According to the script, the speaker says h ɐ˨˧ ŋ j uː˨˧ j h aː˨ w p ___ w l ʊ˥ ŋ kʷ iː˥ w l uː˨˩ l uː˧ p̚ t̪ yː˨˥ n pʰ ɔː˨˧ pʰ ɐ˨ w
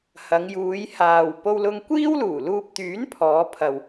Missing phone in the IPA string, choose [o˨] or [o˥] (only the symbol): o˥